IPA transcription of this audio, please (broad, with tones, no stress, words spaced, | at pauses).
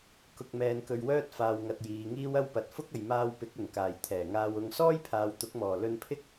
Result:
kʊ˧k̚mɛː˧nkɵ˧ɥwœː˥t̚ faː˧wŋɐ˧t̚jiː˨˧ŋiː˥w ɐ˥wpɐ˨t̚ fʊ˥k̚ɐ˨j maː˧wpɪ˨˥k̚ ɵ˨˩nkaː˨˩j t̪ʰɛː˨˩ŋaː˧w ʊ˨˧ŋsɔː˥j pʰaː˨wt̪ʊ˨˥k̚mɔː˨˩ lɵ˧npʰɪ˥k̚